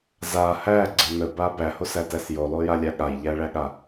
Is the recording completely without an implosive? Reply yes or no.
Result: no